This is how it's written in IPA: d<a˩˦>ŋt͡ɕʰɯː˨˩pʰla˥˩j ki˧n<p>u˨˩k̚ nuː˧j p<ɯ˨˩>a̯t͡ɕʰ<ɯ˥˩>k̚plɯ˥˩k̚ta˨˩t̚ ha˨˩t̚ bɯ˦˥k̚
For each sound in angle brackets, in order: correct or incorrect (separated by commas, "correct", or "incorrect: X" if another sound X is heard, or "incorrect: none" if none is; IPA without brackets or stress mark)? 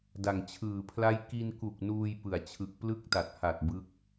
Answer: incorrect: a˨˩, incorrect: k, correct, incorrect: ɯ˨˩